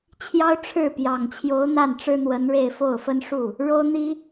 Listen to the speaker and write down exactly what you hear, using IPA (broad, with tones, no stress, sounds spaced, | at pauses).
t͡ɕʰ j ɑ˥ ʊ̯ ʈ͡ʂʰ ɻ̩˥˩ p j ɑ˨˩ ŋ t͡ɕʰ j o˧˥ ʊ̯ n̪ a˥˩ n ʈ͡ʂ ɻ̩˥ n̪ w ə˧˥ n ɻ e˥˧ ɪ̯ f o˥˩ ʊ̯ f ə˥ n ʂ u˥˩ | ɻ o˥ ʊ̯ n̪ i˥